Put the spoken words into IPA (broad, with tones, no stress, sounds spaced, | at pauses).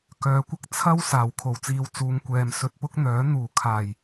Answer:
k œː˨˧ kʷ ɐ˥ k̚ t͡sʰ ɐ˥ w s aː˨˩ w kʰ o˨˩ w t͡s iː˨˧ w t͡s uː˨˧ ŋ kʷ ɛː˨ m s ɵ˧ t̚ p ʊ˥ k̚ n̪ œː˨˥ n̪ uː˨˩ kʰ aː˨˩ j